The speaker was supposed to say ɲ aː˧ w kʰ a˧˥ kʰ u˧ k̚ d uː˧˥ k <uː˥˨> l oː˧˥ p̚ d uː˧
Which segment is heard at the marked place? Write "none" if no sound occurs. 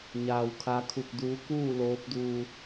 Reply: uː˥˨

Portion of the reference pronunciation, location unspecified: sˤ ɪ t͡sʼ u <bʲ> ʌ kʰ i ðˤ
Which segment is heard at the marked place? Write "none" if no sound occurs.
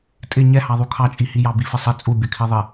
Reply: bʲ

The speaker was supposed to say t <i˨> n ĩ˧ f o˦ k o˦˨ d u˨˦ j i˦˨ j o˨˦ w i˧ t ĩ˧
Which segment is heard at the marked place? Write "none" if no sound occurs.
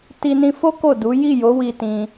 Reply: i˧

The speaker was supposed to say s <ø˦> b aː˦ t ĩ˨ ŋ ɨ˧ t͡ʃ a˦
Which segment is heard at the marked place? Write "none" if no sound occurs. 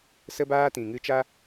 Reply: ə˦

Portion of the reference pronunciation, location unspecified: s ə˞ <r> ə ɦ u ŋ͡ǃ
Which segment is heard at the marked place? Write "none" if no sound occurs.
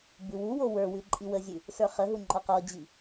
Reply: χ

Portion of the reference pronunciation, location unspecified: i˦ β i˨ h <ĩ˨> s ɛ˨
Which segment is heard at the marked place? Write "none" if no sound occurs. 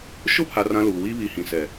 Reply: ĩ˨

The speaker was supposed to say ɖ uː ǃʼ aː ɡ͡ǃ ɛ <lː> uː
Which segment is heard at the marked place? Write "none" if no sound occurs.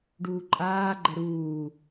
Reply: ɾ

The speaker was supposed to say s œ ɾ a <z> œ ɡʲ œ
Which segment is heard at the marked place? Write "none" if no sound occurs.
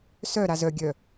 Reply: z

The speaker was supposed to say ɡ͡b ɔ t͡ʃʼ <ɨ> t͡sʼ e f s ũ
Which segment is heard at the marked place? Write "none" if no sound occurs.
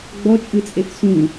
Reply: ɨ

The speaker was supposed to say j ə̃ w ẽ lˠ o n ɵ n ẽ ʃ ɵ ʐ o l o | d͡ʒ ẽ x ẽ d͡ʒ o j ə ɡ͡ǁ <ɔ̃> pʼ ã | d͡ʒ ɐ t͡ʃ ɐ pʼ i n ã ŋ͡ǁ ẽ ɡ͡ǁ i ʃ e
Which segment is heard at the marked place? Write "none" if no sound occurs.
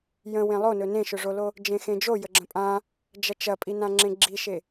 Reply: ə̃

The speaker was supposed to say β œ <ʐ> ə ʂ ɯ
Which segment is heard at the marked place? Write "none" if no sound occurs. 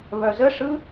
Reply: z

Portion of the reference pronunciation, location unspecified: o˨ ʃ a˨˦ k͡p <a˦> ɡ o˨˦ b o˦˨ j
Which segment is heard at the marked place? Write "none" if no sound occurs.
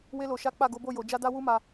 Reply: a˦˨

